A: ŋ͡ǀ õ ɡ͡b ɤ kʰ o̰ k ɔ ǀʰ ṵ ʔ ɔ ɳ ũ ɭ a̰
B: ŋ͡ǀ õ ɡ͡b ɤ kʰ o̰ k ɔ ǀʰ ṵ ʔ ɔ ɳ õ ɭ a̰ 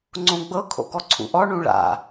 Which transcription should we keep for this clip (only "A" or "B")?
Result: A